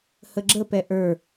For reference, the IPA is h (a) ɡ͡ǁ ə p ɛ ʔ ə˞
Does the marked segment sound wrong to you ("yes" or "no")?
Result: yes